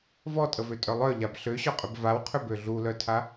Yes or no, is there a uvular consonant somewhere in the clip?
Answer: yes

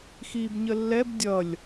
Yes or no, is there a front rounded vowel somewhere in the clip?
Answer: no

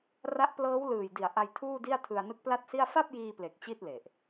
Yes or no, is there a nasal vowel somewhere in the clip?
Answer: no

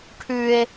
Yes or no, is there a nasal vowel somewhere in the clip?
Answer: no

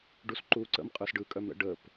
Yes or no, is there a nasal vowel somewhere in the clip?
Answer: no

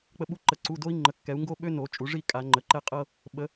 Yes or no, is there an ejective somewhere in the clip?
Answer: yes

